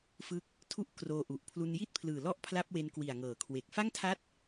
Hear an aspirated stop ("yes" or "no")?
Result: yes